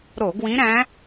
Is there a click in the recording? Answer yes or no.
no